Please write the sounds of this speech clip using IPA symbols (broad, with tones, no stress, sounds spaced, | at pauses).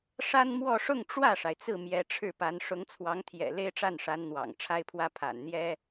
ʂ a˥ n m w ɔ˥˧ ʂ ʊ˥˧ ŋ ʈ͡ʂ w ä˥˩ ʂ a˩ ɪ̯ t͡s ɹ̩˥˩ m j ɛ˧˥ ʈ͡ʂʰ ɻ̩˥˩ p a˧˥ n ʂ ʊ˧˥ ŋ t͡sʰ w ɑ˧˥ ŋ t̪ʰ j ɛ̰˨˩ l e˥ ɪ̯ ʈ͡ʂ a˥˩ n ʂ a˧˥ n n̪ w ɑ̰˨˩ ŋ ʈ͡ʂʰ a˥ ɪ̯ pʰ w ä˥ pʰ a̰˨˩ n n̪ j ɛ˥